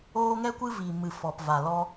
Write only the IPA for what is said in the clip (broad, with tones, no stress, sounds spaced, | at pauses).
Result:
oː˦ ŋ ɛ˦ kʷ ɨ˦ v i˨ m ɨ˨ f ɔ˨ p v a˨ l ɔ˧